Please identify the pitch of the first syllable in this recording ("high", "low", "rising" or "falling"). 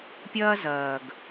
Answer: high